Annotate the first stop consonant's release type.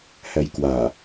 plain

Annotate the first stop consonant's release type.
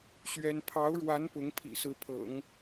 aspirated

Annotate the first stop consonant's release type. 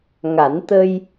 plain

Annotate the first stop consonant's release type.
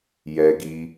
plain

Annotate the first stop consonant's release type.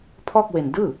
aspirated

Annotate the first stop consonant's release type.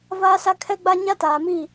aspirated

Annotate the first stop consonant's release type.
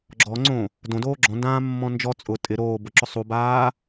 click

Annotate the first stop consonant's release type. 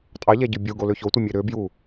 ejective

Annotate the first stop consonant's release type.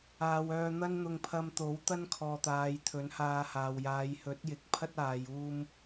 aspirated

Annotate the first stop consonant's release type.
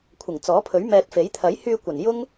aspirated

